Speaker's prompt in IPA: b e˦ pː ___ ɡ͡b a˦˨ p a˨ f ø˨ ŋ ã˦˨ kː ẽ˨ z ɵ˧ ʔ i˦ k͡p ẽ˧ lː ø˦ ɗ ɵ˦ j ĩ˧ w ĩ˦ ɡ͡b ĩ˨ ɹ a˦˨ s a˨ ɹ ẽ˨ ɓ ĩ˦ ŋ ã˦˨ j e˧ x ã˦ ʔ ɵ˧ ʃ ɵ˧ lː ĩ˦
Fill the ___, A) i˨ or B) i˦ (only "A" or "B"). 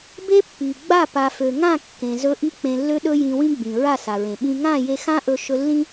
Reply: A